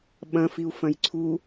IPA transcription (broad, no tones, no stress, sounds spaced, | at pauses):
ɓ ɐ̃ f i u̯ f ɐ̃ j ǀʰ u